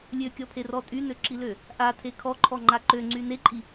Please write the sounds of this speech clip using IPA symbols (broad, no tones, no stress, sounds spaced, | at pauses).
lʲ ø kʲ ɔ pʰ e r ɔ tʼ y n ø ǁ i l ø | ʔ a tʰ e kʰ ɔ ǃʰ ɔ ŋ͡ǃ a ǃ ø ŋ͡ǀ y n e ǃʼ i